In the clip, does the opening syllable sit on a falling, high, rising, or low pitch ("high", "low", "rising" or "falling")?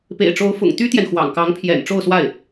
low